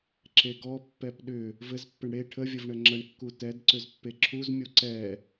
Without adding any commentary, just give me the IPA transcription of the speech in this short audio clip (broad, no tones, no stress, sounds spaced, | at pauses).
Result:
ǁ e ɡ ɔ pː ɛ p ɗ ʏ | v ɘ z pː ɘ ɳ ɽ e ʈʰ ə vʲ ə v ɳ ə ŋ͡ǁ ə ɳ kː u t ɛ d ǀ ʏ z pː e ǁʰ u z mʲ u ǀ ɛ